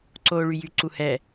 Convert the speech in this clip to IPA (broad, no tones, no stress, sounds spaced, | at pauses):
ǀ oː ɭ y j y ǀ u h ɛ